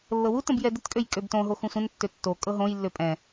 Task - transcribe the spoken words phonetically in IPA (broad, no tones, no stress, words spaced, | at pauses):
lːɤwu tə̃bjɛdət kʼøjkʼøbtõ ɦoxũsʷə̃n tːøtːo kʼɤɦõj lːøpʼɛ̃